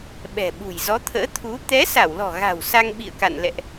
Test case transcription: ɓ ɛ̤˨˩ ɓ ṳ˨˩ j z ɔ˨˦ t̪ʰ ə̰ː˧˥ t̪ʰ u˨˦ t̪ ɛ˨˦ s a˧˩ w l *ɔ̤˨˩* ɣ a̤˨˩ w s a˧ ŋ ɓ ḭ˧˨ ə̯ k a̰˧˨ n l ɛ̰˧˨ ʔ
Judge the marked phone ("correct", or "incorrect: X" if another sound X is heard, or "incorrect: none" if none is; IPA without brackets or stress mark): correct